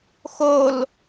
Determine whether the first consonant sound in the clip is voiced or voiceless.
voiceless